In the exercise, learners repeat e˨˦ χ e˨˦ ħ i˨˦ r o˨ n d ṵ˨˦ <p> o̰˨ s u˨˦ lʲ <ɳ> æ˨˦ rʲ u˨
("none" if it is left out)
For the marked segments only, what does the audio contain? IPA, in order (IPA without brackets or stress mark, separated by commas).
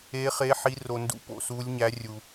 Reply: p, ɲ